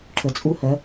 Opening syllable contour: low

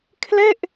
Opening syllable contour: falling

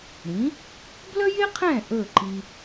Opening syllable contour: rising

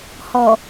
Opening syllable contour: low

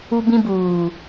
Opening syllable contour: high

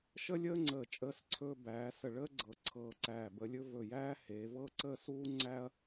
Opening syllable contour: high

